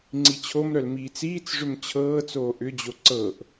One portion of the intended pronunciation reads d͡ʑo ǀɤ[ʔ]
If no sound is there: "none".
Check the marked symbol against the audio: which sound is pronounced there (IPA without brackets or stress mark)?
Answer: ʔ